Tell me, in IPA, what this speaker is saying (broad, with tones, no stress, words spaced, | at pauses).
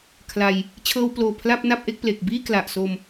kʰla˧j | t͡ɕʰɤː˧wploː˨˩ pʰla˥˩p̚na˥˩p̚ʔe˥˩k̚ple˨˩k̚ biː˥˩kla˨˩ʔso˧m